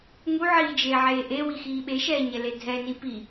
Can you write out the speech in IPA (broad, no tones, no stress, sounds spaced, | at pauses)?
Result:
ŋ u ʕ iː d͡ʒ eː ʕ eː ʔ e w i x iː ɓ e ʃ ɛː ɲ ɛ l e dʱ ɛ n i p i